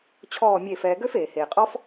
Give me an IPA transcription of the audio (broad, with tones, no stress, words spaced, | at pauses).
t͡ɕʰɔː˦˨mʲe˦˨fɛː˧ ɡø˦feː˨heː˨qʼɔ˦f